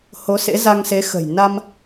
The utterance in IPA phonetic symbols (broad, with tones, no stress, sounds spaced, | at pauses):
h o˨˦ s ḛ˧˥ z a˧ ŋ s e˨˦ x ə̤˨˩ j n a˧ m